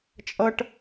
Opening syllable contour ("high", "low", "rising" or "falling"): high